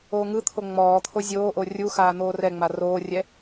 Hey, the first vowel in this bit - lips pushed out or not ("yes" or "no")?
yes